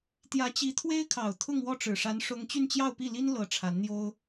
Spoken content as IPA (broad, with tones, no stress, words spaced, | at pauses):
t̪jä˧˥t͡ɕi˧˥t̪ʰwe˥ɪ̯kʰɑ˨˩ʊ̯ t̪ʰʊ˥˧ŋwɔ˥˩ʈ͡ʂɻ̩˨˩ʂa˧˥n ʂʊ˥ŋ t͡ɕy˥˧nt͡ɕjɑ˥˧ʊ̯pi˥˩li˥n lɤ˧˥ ʈ͡ʂʰa˧˥nn̪jo˥ʊ̯